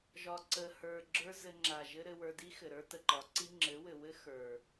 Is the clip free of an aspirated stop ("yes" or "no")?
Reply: yes